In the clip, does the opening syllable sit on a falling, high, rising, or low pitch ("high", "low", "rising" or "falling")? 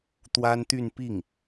high